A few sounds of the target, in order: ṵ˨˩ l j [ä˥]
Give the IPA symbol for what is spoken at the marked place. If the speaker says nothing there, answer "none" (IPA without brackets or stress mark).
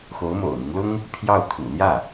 ä˥˩